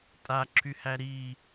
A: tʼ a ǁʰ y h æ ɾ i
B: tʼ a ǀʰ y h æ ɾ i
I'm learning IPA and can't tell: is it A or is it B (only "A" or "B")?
A